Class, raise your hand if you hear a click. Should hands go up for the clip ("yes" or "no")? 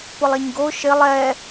no